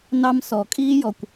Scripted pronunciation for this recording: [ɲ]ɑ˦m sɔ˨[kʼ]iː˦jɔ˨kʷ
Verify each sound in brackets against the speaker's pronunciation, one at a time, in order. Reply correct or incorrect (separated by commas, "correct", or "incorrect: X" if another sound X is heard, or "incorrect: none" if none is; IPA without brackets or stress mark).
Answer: incorrect: n, correct